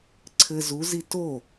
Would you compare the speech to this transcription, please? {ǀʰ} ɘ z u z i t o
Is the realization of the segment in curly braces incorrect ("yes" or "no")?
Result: no